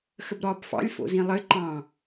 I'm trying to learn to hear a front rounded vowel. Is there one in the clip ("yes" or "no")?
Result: no